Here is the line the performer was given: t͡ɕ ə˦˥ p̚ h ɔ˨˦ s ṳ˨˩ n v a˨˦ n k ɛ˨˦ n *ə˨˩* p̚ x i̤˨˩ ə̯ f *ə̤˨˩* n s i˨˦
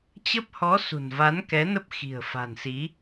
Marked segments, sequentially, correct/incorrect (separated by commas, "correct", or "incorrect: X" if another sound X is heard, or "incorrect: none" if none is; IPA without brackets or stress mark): incorrect: ə˦˥, incorrect: a̤˨˩